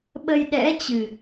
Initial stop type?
implosive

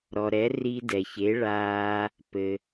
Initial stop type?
plain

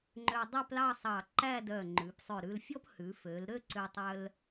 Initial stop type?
click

